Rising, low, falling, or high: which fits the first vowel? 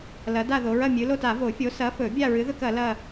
rising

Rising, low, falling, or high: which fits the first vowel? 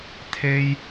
high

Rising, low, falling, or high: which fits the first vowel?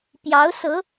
rising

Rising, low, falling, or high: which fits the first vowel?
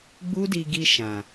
high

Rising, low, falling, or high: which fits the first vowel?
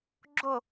falling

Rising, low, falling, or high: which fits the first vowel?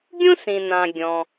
high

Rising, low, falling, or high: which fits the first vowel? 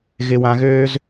low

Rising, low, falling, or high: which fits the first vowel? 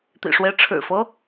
low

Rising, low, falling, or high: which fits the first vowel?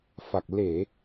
low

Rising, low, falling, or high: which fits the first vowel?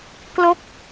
falling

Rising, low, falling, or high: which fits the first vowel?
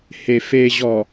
low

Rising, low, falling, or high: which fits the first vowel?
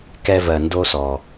high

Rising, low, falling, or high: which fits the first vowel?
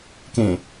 low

